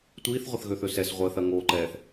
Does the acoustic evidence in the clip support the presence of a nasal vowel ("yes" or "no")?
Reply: no